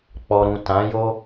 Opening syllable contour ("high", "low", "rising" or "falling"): low